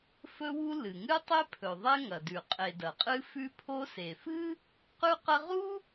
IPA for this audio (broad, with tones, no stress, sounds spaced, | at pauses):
f ɵ˥ w u˥ l ɨ˩ ŋ ɨ˥ tˤ e˥ pʰ ɵ˩ ðˤ e˥ ŋ ɐ˩ d ʉ˩ qʼ e˩ d ɐ˩ qʼ ɨ˥ f ʉ˥ pʰ o˥ s e˩ f ɨ˥ | q ʉ˥ q ɐ˥ ʁ u˥